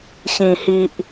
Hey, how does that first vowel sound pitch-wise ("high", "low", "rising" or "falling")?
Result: low